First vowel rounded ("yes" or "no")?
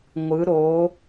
no